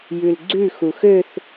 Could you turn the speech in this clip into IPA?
jʉlɡ͡ǀʉ xuxøθ

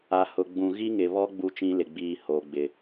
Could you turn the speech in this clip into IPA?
a˨ hʊ˨ɡ͡bũ˨ ɣi˦ŋɪ˨βɔ˦ ɡ͡bu˦t͡ʃĩ˦lɪ˨ɡ͡biː˦˨ ho˨ɡ͡bɪ˨

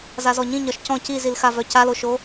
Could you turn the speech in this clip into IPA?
zazɔɲĩ ɲɒʃcɔ̃ cizilxavœ caloʃo

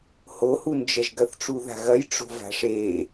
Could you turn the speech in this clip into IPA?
hohund͡ʒɐʒ ɡɐθʈ͡ʂuða̤ɣɐj ʈ͡ʂo̤va̤ʂe

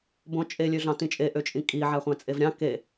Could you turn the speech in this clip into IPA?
bõt͡ʃʼe lʲøɮɑ̃tĩt͡ʃʼe ʔøt͡ʃʼĩkʼi ʕæχʷæ̃t͡sʼevɾʲɑ̃ ke

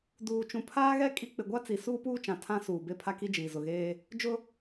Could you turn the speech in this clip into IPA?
duː˨t͡ʃũ˨ pʰaː˦ɣɛ˦ kʼi˦ k͡pɪ˨ɡʷa˦t͡si˨ suː˦puː˦t͡ʃã˨ tʰã˦suː˨ be˦pʰa˦ki˦d͡ʒiː˨ zʊ˨ɣeː˦ | d͡ʒʊ˦

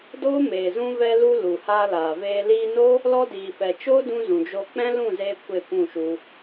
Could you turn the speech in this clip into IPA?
doː˦meː˨ zũ˧vɛ˧ lu˧ lu˨haː˧ laː˨veː˧ liː˧no˦ | lɔ˧diː˨fɛ˨ t͡ʃoː˦dũ˧ zũ˨d͡ʒo˧ k͡pɛ̃˦lũ˦˨zeː˧ kʷe˦˨kʷũ˦˨ʃu˧

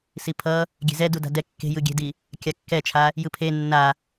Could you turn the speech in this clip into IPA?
sipʰʌ | ɡʲe̤zɛ duda̤dɛ kːe̤ jɯɡʲe̤di | kʲakːɛt͡ʃʰa | jɯpʰe nːa

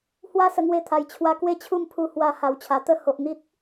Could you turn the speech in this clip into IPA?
hwa˥˧sə˧ŋwe˧t̪ʰa˨˩j t͡ɕʰwa˧kwe˥˧t͡ɕʰu˥˧m pʰu˧hwa˧ ha˨˩wt͡ɕʰa˨˩ t̪ə˥˧ho˨ʔn̪i˦t̚

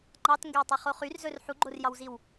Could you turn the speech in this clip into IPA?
ŋ͡ǃɑtŋɡøwtˤeχo χyrzɵr ħuɡ͡ǃorjɑwziw

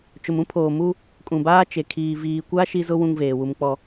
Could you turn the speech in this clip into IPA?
t͡ʃʊ˨mũ˦pʰoː˨mu˦ | kʼũ˨baː˦ t͡ʃe˨kʰiː˨ viː˨kʷa˦ ʃi˦zʊ˦ wũ˦ŋveː˨wu˦m k͡pɔ˦

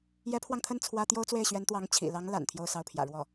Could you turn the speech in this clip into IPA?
jɛ˧˥pʰwɑ˧ŋt̪ʰə˥˩n t͡sʰwä˥ t̪jo˥ʊ̯t͡swe˥˩ɪ̯ɕɥɛ˧˥nt̪wɑ˧˥ŋ t͡ɕʰḭ˨˩lɑ˧˥ŋ la̰˨˩n t̪ʰjo˥˧ʊ̯sɑ˥˩ʊ̯pʰjä̰˨˩ ɻwɔ˥˩

